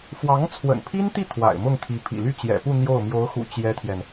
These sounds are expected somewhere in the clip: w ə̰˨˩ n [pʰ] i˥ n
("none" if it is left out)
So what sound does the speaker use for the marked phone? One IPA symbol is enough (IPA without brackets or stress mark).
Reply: pʰ